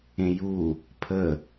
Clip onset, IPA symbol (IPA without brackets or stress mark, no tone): ẽ